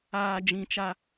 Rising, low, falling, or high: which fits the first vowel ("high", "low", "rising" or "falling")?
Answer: low